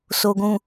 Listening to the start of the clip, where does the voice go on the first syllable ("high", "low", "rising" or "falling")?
low